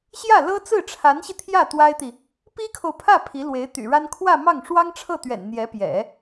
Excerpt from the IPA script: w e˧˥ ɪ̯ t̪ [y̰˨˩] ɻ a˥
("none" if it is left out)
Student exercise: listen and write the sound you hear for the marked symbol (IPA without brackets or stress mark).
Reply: y̰˨˩